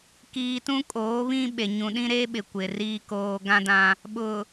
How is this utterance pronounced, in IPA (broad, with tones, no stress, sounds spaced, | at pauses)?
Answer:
k iː˨ t ũ˦ kʼ oː˨˦ β ĩ˦ ɓ e˨ ɲ ũ˨ ɗ ĩ˦ ɾ e˦ ɓ ɪ˨ kʷ ɪ˨ r iː˦ k oː˦ ɡ ã˦ d ã˦ | ɓ ʊ˨